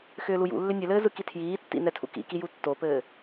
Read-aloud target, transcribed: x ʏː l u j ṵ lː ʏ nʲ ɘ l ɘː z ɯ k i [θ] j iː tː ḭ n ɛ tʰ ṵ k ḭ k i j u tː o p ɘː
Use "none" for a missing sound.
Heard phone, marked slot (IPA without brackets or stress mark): tʰ